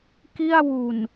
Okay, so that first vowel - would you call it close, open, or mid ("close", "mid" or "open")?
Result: close